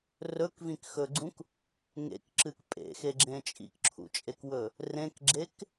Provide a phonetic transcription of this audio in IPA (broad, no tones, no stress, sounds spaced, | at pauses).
r ɵ k v ĩ k x ɵ ɡ͡ǀ ũ k | ŋ ḛ k ǁ ɨ k pʼ ḛ x e ɡ͡ǁ ẽ t͡ʃʼ ḭ k ǁʰ ṵ t͡ʃʼ e k w ɵ | r ẽ k ɡ͡ǁ e k